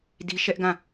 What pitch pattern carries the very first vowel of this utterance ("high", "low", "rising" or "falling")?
high